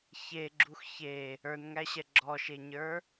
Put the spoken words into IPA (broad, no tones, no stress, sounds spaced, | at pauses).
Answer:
ç e ɡ͡ǁ u x ç e | ə˞ n ŋ æ ɕ ɛ ɡ͡ǁ ɔ ʃ e ɲ ə˞